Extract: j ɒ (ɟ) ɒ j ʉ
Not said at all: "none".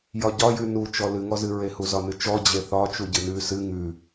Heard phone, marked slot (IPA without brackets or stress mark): ɟ